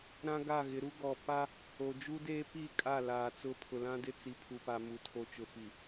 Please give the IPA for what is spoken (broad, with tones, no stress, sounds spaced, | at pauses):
ɾ ã˦ ɡ a˦˨ ɣ ɪ˨˦ ɾ u˦ ɡ ɔ˨ p a˦ | o˨ d͡ʒ u˦ d eː˦ p i˦˨ kʼ a˦˨ l aː˨ t͡s ʊ˦˨ pʰ ʊ˨ l ã˦ d ɪ˦ t͡s i˨ pʰ u˨ p a˨ m u˨ tʰ o˨ t͡ʃ ʊ˨ f i˨